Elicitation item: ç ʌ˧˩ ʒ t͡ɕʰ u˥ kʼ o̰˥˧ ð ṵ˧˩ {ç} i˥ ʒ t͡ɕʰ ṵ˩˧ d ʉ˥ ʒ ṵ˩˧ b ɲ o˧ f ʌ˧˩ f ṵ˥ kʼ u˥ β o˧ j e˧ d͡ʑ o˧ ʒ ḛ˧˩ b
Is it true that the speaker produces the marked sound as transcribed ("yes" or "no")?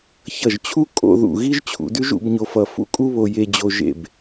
no